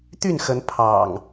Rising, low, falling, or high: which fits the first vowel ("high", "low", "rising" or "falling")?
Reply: falling